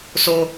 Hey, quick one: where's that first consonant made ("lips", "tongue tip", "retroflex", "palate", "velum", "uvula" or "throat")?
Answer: tongue tip